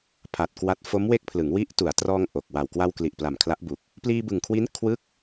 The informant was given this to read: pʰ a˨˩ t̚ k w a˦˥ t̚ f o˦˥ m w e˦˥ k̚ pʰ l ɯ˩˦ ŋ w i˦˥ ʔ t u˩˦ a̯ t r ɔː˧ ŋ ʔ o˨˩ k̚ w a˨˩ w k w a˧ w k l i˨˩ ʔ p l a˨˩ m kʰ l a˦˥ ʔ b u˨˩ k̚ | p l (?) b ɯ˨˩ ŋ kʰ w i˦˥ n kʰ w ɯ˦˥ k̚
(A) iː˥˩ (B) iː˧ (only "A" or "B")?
B